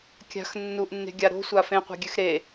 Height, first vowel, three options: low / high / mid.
low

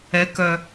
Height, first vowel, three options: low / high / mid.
mid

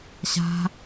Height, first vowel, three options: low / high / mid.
low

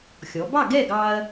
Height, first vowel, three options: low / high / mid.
mid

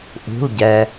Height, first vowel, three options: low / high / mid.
high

